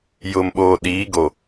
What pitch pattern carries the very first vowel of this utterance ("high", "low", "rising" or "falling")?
low